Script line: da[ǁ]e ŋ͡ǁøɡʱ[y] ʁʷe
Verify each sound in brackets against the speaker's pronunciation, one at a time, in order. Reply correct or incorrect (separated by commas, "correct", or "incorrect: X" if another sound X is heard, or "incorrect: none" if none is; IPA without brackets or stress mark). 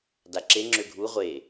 correct, incorrect: u